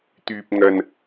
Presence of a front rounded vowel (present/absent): present